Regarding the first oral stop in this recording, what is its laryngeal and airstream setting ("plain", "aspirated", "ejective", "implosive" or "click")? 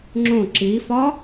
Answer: click